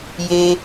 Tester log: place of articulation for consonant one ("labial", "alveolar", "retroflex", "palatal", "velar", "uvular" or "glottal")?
palatal